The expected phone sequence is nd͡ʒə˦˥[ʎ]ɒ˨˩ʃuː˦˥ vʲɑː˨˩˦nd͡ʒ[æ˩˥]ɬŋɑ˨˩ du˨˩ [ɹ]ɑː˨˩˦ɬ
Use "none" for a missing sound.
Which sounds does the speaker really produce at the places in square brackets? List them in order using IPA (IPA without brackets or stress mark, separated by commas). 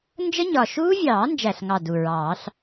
ɲ, æ˨˩, ɹ